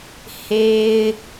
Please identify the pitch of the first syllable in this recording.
low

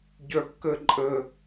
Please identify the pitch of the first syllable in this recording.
high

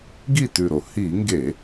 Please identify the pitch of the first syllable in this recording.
falling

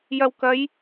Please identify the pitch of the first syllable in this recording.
low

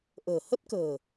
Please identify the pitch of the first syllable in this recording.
low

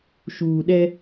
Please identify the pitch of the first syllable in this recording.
low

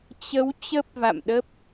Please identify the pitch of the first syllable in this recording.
rising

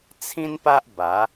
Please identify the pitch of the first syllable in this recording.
high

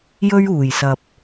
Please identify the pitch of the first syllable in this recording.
high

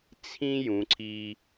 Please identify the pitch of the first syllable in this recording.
high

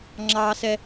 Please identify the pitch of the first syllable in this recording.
high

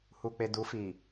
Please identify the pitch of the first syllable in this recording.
low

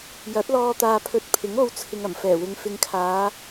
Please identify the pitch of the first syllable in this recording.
rising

